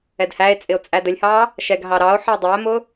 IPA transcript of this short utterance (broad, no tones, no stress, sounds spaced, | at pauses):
ɛ d h æ e̯ t͡sʼ ɪ o̯ t͡sʼ æ d ə lʲ h ɑ | ʃ ɛ ɡ ɦ ɑ ɾ ɑ o̯ ħ ə o̯ dˤ æ m ʊ